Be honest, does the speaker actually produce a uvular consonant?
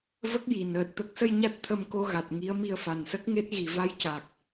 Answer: no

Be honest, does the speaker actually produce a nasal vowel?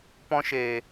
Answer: yes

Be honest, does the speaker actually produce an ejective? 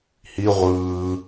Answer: no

